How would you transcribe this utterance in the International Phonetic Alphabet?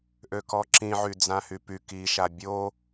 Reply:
ʔ ø k ɔ ǁ ĩ ʕ y d͡z ã h y p y k i ʃ a bʲ o

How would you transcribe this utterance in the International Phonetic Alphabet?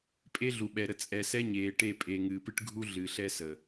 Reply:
pʼ e˦ ɮ u˨ ɓ ɛ˨ ɾ ə˨ t͡sʼ ɛ˨ s ɛ˦ ɲ eː˨ ʈ e˦˨ pʼ e˨ ŋ ɨː˨ p ɨ˦ ʈ ɡʱ u˦ ɮ ɨ˨ ɬ ɛ˦ s ə˨

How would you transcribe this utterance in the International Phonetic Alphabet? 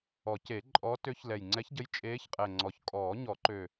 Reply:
ɔ˨˩˦ c e˨˩˦ ǃʼ ɔ˧˥ t ø˧˥ ç l ɛ˨˩ j ŋ͡ǀ ɛ˧˥ ç ɟ ə˧˥ j t͡ʃʼ eː˧˥ ç qʼ ɛ˨˩ ŋ͡ǀ ɔ˨˩ ç kʼ ɔː˨˩˦ ɲ ɔ˨˩˦ ǃ ø˨˩

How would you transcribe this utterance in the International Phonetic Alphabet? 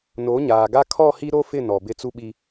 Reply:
n o˨˦ ɲ aː˨ ɡ a˦ kʰ ɔ˦˨ h i˦ ɾ o˦ f ɪ˦˨ n ɔ˨ b ɪ˦ t͡s u˦ ɓ i˦

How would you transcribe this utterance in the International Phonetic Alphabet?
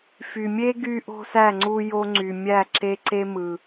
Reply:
f y˨ mʲ e˦ ɡ y˦ ʔ o̤˦ s æ˦˨ ŋ͡ǀ u˦ j o˦ ŋ͡ǀ y˨ mʲ æ˦˨ ǁ e˦ ǀ e˦ m ɯ˨

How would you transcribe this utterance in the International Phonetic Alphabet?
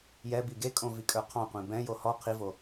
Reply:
j ɛ b i ɡ e kʼ õ v i kʼ ə˞ qʰ ɑ̃ qʷ ẽ b ɛ̃ j o h ɔ qʰ i v o

